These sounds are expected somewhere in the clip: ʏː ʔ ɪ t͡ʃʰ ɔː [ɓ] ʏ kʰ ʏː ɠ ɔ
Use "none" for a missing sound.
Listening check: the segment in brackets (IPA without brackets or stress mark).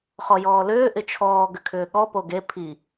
ɡ